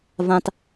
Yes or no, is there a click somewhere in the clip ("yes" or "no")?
no